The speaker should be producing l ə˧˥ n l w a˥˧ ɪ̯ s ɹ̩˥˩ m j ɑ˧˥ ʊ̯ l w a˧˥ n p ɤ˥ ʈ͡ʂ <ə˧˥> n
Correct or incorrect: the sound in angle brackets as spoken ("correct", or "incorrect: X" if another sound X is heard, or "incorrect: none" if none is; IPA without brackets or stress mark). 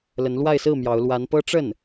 incorrect: ə˥˩